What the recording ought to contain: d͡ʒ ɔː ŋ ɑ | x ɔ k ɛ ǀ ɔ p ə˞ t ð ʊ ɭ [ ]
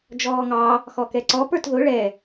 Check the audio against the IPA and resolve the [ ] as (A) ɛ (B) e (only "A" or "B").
A